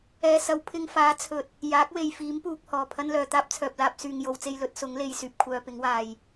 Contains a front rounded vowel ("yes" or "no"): yes